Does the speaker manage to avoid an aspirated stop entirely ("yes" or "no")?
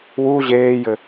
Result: yes